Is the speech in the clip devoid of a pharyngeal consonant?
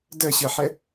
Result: no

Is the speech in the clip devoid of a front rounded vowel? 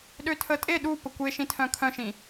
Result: no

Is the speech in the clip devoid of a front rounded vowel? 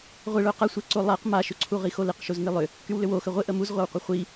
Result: no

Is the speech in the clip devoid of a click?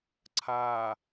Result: no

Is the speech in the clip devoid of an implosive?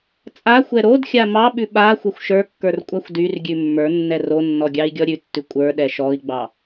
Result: no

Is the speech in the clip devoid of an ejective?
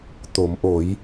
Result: yes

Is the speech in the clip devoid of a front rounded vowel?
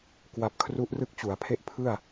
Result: yes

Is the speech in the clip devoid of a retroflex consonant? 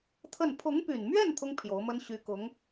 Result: yes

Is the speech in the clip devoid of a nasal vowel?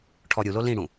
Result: no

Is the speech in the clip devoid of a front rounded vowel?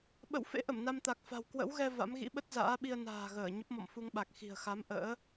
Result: yes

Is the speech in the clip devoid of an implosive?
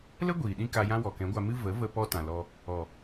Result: no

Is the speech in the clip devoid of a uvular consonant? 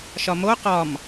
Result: no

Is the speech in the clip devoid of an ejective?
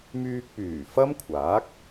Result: yes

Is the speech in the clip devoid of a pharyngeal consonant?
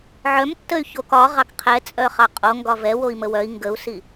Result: no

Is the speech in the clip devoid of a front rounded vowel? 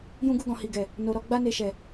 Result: yes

